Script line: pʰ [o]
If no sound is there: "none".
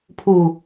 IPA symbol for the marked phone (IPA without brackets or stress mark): u